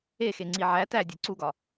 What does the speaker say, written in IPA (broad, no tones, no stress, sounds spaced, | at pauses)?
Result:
e x e ŋ͡ǀ i ʕ æ t æ dʲ e ǀ u ɡ ɒ